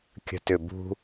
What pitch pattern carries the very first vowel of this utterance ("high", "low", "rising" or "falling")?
low